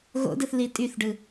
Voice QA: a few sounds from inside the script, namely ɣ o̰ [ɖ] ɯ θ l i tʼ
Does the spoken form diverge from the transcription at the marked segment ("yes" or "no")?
yes